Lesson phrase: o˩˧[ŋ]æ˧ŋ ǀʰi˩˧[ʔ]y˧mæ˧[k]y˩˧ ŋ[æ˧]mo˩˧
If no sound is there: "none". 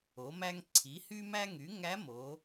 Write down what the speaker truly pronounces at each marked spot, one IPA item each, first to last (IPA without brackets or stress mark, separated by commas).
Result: m, h, ŋ, æ˧˥